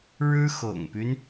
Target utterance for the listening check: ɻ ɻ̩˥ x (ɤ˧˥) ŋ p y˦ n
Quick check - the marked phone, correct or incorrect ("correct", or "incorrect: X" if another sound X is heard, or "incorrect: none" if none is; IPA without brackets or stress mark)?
incorrect: ɤ̰˨˩